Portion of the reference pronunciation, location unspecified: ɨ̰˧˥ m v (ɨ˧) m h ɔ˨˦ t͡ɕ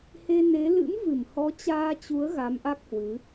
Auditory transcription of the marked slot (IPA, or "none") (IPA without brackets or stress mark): ɨ˧˩